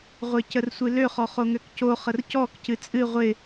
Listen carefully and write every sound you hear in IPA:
ʁʷ ɪ c ə r sʷ ɨ l ø χ ɔ χ o ŋ ø k c o χ ə r c ɔ k c ɨ t͡sʼ ɨ ʁʷ ɪ

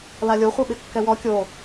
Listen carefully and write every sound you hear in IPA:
l a lʲ o χʷ i ɓ ɪ kː ɛ w ɔ kʲ o

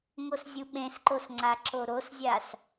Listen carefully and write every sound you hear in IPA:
ŋ o s zʲ u ɓ ẽ s ǃ o s ŋ͡ǀ a ǁ o ɾ o s zʲ a s

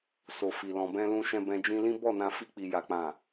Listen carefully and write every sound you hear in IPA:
s o˨ f i˨ l ɔ̃˨ b ɛ̃˧ l ũ˧ ʃ ɛ̃˧ b ɛ̃˧ d͡ʒ ĩ˧ l ĩ˦ b ɔ˦˨ n ã˧ f i˧ k͡p i˨ j a˨ k͡p ã˨

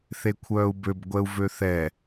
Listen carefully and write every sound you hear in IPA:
θ e kʷʰ œː u̯ b ø b ɡʷ ɛ u̯ v ø θ ɛ

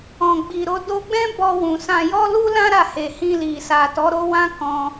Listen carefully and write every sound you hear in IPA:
ɔ̃˨ ɡ͡b i˨ ɾ o˧ d o˧ ɡ͡b ɛ̃˦ b ɔ˧ w ũ˨ s ã˧ j ɔ˦ l u˦ l ã˦ ɾ a˦˨ h e˨ h ĩ˧ l i˨ s a˨ t ɔ˨˦ ɾ o˦ w ã˦ k ɔ̃˧

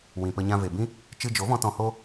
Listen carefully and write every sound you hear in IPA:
w ĩ˨ p ə˧ ɲ ã˧ v e˨ b ĩ˦ | t͡ʃ ɨ˧ d͡ʒ o˨˦ v ɔ̃˧ t ɔ̃˧ h o˦

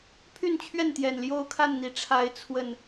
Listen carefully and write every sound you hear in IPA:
pʰ y˥˨ n t͡ɕʰ ɥ ɛ˥˨ n t̪ j ɛ˨˩ n l j o˦ ʊ̯ kʰ a˥˨ n n̪ i˨˩ ʈ͡ʂʰ a˨˦ ɪ̯ t͡sʰ w ə˨˩ n

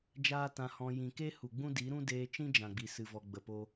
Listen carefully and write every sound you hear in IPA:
d͡ʒ aː˦ t ã˧ h ɔ̃˧ j ĩ˨ k e˦ h u˨ ɡ͡b ũ˦ d i˨˦ ɾ ũ˦ d eː˧ t͡ʃ ĩ˦ d͡ʒ ã˨ ɡ͡b i˨ s ɨ˨ v ɔ˨ ɡ͡b ə˨ p o˧

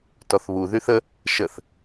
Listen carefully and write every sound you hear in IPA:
t ɔ θ β u ð y θ ə | ʃ ə θ

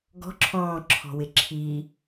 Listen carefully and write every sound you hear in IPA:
ɡ ɔ̤ ǁʰ ɔ̃ː ǁʰ ɔ̤ w ɪ ǁʰ i

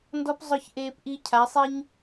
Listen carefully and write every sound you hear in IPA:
n d ɔ˦ p zˤ ʊ˦˨ ç ʔ eː˧ p ʔ i˧ cʰ a˨˦ sˤ i˦ ɲ

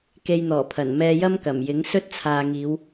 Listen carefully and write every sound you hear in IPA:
k e˧ j n̪ ɔː˨˩ pʰ ɐ˨˩ n m ɛː˧ j ɐ˥ m k ɐ˨˩ m j ɪ˨˥ ŋ s ɵ˥ t̚ t͡sʰ aː˨ ŋ iː˨˧ w

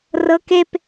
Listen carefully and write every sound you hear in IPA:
r ɤ k e p

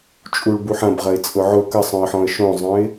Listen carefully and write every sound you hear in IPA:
t͡ʃʼ u ɭ b u ħ ɐ̃ b ʁ ɐ ɪ̯ t͡sʼ ʊ ʕ ʊ k ə sˤ œ̃ ə̯ ħ ɔ̃ ə̯ ʃ õ zˤ œ̃ ɪ̯

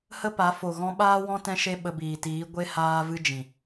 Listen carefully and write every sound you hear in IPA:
h ə˦ p a˨˦ f o˨ ɣ ɔ̃˧ ɓ aː˦ w ɔ̃˦ t ɛ̃˦ ʃ e˦ ɓ ə˧ b iː˨ t iː˨˦ ɡʷ e˧ h aː˧ v ɨ˧ d͡ʒ ĩ˨

